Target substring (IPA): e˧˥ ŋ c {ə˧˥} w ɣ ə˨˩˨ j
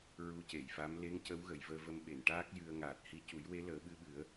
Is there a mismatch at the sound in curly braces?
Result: no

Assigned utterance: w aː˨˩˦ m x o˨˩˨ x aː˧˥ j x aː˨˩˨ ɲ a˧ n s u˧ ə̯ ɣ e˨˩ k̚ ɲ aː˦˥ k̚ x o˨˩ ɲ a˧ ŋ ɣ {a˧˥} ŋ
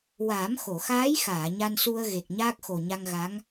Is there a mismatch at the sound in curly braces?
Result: no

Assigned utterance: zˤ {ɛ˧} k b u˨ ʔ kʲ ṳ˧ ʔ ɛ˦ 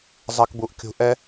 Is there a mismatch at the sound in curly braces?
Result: no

